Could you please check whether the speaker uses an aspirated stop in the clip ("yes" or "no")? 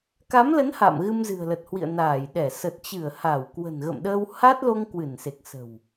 no